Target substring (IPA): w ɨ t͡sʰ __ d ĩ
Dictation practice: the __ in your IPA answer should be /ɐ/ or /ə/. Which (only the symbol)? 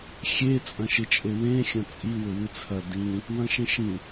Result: ɐ